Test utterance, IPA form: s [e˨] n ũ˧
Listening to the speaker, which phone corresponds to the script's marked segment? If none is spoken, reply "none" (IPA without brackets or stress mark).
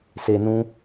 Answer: e˨